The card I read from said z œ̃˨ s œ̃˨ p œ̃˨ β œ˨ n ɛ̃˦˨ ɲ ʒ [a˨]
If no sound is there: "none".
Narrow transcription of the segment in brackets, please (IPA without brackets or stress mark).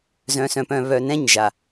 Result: a˨